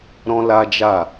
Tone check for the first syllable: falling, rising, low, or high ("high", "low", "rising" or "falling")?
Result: high